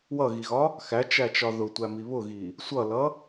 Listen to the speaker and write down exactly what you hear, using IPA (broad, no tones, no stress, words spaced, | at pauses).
wʌɣiɣɒ | xæt͡ʃæt͡ʃɒ ðʊtʷæmi βʊɣi | sʷʌlʌ